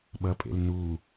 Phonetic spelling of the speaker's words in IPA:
ɓ ʌ pʼ ḛ l n u

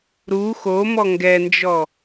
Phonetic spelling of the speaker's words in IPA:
ɾ u x o m ɔ ŋ ɡ ɛ n d͡ʒ ɔ

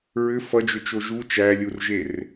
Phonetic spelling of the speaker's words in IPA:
ɹ ʏ f ʌ d͡ʒ ʏ t͡ʃ o ʒ u t͡ʃ æ lʲ u r ʒ e r

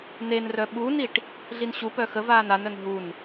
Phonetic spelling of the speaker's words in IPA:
n e n r œ ɓ u n i ʈ | ɮ i n ɕ u p œ x ə v aː n a n œ n ɦ u n

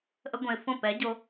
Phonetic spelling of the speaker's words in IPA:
ʔ ə˧ ɡʷ ɛ̃˨ ɪ̯ f õ˦˨ p ɛ˨˦ ɟ o˧

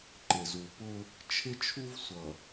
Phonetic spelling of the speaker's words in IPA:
ǃ ɪ˨ z u˨ p ʊ˦ | t͡ʃʰ ɪ˦ t͡ʃʰ u˦ v sʷ ʌ˨

